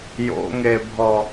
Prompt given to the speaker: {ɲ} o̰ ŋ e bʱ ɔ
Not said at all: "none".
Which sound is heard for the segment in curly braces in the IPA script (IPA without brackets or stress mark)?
j